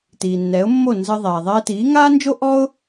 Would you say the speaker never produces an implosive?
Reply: yes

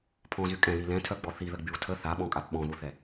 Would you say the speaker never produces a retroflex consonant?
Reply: yes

